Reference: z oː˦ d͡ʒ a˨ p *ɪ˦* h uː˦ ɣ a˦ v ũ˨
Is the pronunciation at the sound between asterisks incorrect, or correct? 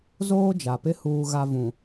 correct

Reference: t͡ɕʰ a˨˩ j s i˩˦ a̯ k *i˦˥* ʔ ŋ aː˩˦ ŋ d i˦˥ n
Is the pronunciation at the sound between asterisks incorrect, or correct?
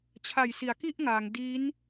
incorrect: i˥˩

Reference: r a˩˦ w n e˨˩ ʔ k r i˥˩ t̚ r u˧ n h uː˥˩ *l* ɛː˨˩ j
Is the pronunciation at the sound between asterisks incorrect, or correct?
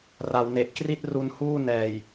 incorrect: n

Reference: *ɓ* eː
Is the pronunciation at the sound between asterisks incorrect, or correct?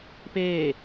incorrect: p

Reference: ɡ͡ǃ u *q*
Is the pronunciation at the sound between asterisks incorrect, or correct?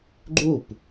incorrect: p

